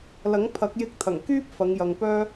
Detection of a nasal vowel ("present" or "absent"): absent